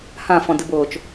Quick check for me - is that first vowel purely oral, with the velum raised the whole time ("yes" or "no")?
no